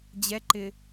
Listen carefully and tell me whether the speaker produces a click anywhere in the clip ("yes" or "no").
yes